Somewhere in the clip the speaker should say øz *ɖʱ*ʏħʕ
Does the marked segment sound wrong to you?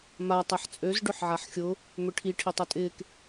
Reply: yes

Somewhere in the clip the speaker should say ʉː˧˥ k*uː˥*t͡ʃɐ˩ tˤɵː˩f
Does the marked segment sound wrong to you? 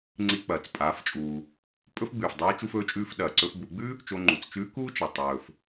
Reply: no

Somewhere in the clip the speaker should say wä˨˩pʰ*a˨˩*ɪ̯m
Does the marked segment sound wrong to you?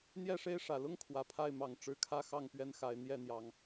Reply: yes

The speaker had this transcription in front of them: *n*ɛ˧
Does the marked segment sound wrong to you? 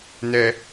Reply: no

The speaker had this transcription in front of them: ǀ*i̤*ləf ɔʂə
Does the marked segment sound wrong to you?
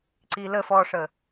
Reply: yes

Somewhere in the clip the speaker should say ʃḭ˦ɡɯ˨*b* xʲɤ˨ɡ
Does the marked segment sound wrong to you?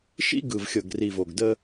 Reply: yes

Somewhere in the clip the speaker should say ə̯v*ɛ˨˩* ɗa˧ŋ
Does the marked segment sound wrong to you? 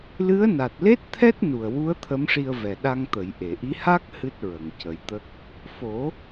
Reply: no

